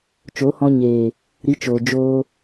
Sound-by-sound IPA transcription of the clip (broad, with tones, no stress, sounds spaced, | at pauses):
t͡ʃ o˨˦ h ɔ̃˧ ɲ eː˨ | ɾ i˨˦ t͡ʃ oː˨ d͡ʒ oː˧